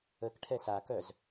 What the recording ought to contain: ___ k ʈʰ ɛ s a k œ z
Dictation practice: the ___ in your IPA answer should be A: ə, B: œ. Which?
A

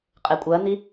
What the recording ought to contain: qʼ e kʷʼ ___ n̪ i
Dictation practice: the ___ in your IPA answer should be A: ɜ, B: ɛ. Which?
A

